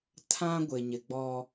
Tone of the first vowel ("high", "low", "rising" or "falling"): high